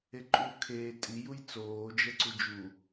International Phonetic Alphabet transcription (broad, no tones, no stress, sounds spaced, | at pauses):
e ǃʼ uː kʰ eː tʼ i j u j t͡s oː d͡ʒ ɛ ǀ u d͡ʒ u